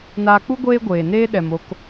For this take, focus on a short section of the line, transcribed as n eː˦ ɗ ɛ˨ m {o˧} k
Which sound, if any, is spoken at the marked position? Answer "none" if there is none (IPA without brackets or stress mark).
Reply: o˧